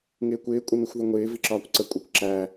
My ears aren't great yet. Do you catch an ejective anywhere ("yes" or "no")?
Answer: yes